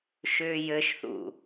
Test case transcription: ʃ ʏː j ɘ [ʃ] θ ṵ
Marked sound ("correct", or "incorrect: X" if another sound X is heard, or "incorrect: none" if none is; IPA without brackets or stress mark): correct